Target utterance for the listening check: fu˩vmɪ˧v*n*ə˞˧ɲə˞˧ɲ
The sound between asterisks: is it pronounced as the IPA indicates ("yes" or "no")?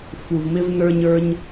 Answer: yes